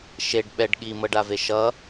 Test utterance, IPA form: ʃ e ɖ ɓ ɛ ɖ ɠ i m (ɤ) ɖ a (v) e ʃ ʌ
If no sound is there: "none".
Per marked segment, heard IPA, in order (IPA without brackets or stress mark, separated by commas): ɤ, v